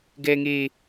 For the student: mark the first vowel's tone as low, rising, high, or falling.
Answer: high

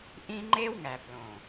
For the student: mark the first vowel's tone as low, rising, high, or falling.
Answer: high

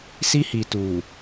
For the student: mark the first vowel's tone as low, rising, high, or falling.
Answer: high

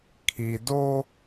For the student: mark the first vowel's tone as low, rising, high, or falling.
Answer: low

